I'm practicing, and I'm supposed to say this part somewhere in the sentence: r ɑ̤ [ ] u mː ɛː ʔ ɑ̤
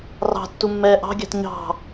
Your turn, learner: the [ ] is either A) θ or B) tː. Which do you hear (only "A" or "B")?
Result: B